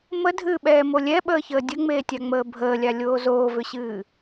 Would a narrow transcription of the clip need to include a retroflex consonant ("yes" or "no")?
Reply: no